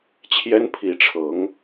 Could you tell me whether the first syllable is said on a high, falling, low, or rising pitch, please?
high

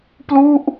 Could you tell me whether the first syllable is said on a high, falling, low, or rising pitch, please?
falling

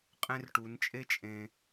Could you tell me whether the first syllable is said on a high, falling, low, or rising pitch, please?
high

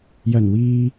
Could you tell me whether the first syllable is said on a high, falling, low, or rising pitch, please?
low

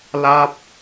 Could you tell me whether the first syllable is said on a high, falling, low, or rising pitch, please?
falling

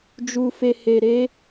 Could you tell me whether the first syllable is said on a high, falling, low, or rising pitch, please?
low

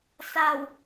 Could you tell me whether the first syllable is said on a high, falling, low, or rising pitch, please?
low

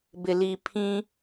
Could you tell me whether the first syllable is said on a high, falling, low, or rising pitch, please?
low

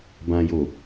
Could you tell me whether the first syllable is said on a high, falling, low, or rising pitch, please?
low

